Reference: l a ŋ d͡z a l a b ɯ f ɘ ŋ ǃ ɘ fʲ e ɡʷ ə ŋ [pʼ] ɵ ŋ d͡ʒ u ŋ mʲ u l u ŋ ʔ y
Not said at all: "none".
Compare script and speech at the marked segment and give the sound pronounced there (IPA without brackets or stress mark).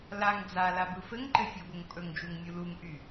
pʼ